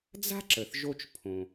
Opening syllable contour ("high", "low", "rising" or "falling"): high